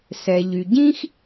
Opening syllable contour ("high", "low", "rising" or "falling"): low